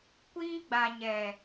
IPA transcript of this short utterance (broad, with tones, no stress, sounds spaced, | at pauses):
kʷ iː˦ ɡ͡b a˨ ɲ ɛ˨